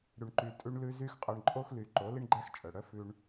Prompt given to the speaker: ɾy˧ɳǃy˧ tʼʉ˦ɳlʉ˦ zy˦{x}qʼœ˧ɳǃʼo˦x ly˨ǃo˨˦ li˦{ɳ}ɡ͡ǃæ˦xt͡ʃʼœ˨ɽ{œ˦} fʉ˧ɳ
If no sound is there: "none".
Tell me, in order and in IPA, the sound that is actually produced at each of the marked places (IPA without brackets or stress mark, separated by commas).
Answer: x, ɳ, œ˦